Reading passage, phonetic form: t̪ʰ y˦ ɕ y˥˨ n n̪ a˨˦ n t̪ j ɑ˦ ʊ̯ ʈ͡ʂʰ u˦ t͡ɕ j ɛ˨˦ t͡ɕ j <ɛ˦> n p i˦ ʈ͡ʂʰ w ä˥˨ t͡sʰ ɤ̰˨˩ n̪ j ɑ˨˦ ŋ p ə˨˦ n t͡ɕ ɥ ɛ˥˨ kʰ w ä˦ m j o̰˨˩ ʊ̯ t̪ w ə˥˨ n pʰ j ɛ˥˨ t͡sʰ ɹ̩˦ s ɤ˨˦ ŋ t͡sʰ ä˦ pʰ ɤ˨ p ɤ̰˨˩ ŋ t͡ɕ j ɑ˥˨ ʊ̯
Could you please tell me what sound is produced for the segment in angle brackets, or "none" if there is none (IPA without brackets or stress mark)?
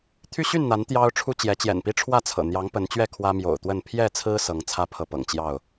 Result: ɛ̰˨˩